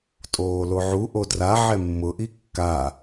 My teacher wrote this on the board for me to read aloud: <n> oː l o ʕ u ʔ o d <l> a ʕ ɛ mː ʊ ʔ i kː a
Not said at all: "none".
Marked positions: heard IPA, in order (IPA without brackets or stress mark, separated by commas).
tʼ, r